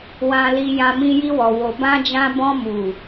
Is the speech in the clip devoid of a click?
yes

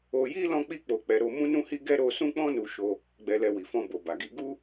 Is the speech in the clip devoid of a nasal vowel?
no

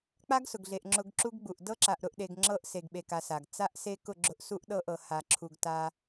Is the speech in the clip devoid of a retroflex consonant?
yes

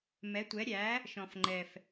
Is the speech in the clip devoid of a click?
no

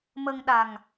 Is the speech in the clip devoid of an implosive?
no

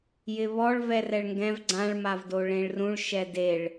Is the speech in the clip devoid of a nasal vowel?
no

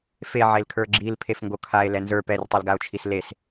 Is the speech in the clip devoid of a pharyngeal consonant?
no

